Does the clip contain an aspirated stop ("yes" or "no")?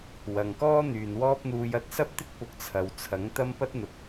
yes